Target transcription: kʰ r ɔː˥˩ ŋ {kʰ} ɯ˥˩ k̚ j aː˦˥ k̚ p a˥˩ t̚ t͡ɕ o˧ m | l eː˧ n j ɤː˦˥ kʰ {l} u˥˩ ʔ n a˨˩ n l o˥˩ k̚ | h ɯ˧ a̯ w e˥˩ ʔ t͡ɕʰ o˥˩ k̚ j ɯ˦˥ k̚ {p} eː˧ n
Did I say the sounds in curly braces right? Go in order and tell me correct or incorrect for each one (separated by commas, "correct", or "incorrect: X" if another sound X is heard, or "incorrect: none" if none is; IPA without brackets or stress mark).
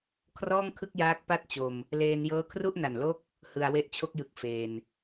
correct, incorrect: r, incorrect: f